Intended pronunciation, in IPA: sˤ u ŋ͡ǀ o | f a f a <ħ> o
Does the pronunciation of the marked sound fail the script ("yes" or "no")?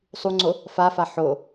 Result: no